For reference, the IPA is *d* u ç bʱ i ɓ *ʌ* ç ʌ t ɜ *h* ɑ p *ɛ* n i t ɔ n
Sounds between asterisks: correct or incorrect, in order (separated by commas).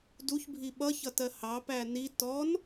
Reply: correct, correct, correct, incorrect